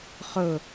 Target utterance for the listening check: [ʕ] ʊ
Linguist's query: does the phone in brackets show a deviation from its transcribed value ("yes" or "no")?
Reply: yes